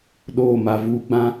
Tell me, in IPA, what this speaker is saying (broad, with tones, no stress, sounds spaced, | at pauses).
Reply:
ɗ oː˦˨ m a˨ v uː˦ ɡ͡b ã˦